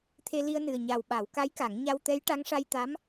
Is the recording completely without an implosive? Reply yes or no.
no